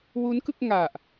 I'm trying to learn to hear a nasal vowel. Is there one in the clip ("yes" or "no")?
no